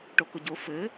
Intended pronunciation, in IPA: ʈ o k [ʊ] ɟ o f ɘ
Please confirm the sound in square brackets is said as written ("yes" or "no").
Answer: yes